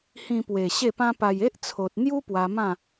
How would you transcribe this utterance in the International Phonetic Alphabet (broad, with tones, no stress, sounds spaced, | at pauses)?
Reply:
h ĩ˧ p w e˨˩ ɕ e˥˧ p ã˦ p a˧ j e˦ ʔ t͡sʰ o˨ t̚ n̪ j u˦ p w a˧ m ã˥˧